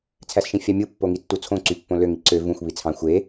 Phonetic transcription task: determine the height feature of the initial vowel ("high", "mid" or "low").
low